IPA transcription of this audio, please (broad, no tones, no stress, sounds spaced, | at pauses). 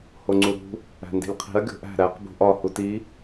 h o ŋ͡ǀ u ɾ ṳ | æ̤ n d i̤ lʲ qʰ i̤ ɐ̯ ɡʲ o̤ ʔ æ̤ ɾ æ q b ṳ ʔ ɒ h u t i